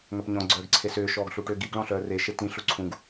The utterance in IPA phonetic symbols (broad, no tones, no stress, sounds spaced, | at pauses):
ŋ œ p ɲ ɔ̃ ɡ͡ǀ œː ɡ ǀʰ e s ʏː ʃ ɔː ɡ ɬ u ʈ ʏː ɡ i ɡ ɭ ɔ̃ ɬ œː r e ʃ e t ĩ ɬ u ǀʰ ũ ɡ